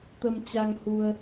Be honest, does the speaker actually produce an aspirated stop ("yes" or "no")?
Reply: no